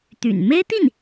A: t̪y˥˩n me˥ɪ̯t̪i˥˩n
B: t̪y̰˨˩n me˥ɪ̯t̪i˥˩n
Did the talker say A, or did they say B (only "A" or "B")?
B